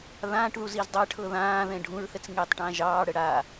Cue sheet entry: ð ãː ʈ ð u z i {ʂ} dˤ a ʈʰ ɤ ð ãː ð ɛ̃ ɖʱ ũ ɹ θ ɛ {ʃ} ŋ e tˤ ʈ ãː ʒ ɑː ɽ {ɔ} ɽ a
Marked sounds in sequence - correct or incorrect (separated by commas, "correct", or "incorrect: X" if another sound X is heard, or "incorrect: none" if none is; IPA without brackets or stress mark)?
incorrect: z, incorrect: t͡s, incorrect: ə